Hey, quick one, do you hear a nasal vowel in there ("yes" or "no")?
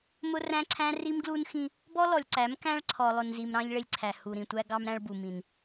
yes